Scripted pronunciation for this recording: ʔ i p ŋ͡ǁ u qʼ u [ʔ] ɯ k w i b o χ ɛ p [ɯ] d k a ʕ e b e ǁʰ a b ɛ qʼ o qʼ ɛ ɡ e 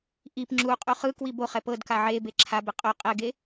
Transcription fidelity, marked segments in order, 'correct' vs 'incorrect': incorrect, incorrect

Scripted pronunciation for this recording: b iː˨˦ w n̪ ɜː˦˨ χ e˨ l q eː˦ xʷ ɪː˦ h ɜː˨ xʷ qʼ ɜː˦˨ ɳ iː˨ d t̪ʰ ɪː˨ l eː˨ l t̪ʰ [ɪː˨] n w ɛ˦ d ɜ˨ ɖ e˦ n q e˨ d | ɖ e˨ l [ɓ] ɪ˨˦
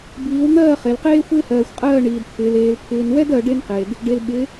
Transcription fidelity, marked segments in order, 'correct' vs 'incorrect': correct, correct

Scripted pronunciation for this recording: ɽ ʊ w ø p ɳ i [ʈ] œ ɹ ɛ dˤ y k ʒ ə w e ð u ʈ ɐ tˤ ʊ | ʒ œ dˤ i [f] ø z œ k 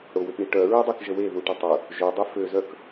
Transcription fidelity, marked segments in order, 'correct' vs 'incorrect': correct, correct

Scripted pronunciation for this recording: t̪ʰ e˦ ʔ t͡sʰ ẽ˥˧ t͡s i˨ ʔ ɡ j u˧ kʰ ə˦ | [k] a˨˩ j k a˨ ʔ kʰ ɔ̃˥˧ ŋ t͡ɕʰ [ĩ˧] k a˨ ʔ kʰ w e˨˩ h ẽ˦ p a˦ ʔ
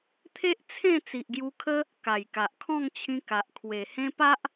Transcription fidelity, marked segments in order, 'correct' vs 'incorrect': correct, correct

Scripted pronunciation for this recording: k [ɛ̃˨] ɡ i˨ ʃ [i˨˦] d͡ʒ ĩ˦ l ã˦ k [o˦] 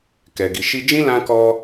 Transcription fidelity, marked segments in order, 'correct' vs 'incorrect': incorrect, incorrect, incorrect

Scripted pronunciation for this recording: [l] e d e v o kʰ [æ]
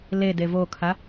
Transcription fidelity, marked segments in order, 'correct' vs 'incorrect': correct, incorrect

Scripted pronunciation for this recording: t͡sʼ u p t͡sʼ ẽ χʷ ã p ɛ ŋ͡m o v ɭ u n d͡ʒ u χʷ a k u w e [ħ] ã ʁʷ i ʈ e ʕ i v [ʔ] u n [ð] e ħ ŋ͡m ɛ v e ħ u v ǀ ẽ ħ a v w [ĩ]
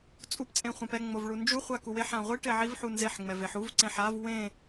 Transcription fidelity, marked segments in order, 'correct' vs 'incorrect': correct, incorrect, incorrect, incorrect

